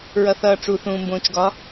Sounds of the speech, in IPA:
ɹʌθʌːʈ͡ʂu θũːmbõːt͡ʃɡɒ

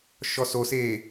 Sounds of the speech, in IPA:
ʃɔsoseː

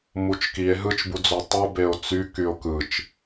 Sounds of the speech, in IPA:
mut͡ʃkie̯ ɦɯt͡ʃbud͡zo tˤubeo̯ t͡sykyo̯ kɯt͡ʃ

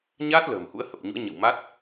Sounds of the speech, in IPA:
ɲaː˦˥t̚ lə̤ː˨˩mhṵ˧˥ə̯hə˨˩p̚ɲṵ˧˥ə̯ ɲə̰˧˨wma˦˥t̚

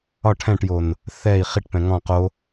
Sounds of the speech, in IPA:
ɒ ʈʰɛ̃ʈjon | θɛi̯ χiʈpɛ̃ ŋɔ̃ qo

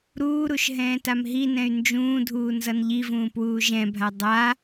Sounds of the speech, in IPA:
ɾuːɾuʃ ɦɛ̃ːtamɦinɛ̃y̯ nd͡ʒũːdʱuː nzʌnʎivũː pwuːʒɛ̃bʱa dˤa

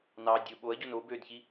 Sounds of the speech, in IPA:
nɑ dʲɯ ɓoɐ̯ɟon o bødçi

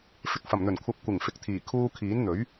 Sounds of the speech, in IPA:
fɪ˨k̚fɐ˨˩mn̪ɵ˨˩nkʷʰɐ˨˥p̚ kʷɪ˨˩ŋfɪ˨˥k̚t̪ʰiː˨˩ kʰuː˧kʰiː˨˥n n̪ɵ˨˥ɥ

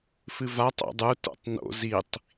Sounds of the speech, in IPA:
fɨvatˤ o̰dˤu to̰tˤno̰ zitˤ

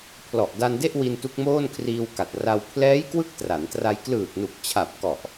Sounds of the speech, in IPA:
pʰlɔ˨˩ʔda˧nde˥˩ʔ wi˧ntu˦˥k̚moː˥˩nkʰriː˧w ka˨˩t̚ra˧w pʰlɛː˦˥jkwɯ˦˥k̚ tra˩˦ntra˧j klɯː˨˩k̚nu˨˩k̚t͡ɕʰa˨˩p̚ kɔ˨˩ʔ

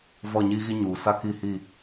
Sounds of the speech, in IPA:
vɔ˦˨ɲiː˦ɣi˦ ɲuː˨ sa˦ki˦˨hi˦˨

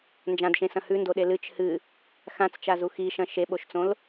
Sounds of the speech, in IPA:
nd͡ʒãdʃẽsɐ̃ hʉndoɗe lɨt͡ʃ hɨ | xãt͡st͡ʃazu xiʃɐ̃ ʃeɓoʃt͡sõl

